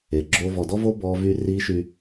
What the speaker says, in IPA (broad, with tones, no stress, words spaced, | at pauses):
e˨ɡ͡ǁo˦ vɔ˨dɔ˦vo˦ bɔ˦vy˦ ri˦ʃy˦